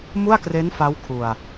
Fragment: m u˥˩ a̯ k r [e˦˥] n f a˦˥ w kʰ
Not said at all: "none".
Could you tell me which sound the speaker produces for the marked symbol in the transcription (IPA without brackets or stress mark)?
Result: e˦˥